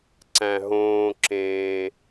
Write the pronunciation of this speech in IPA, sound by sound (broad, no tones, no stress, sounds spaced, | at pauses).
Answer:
ǀ æ̃ ɦ õː ǁ ẽː